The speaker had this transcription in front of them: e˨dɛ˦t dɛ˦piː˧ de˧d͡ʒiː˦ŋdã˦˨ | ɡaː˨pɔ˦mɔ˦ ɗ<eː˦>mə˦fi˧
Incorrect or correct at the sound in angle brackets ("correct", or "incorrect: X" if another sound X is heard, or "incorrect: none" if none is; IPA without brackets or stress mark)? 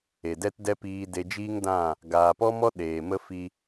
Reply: incorrect: eː˨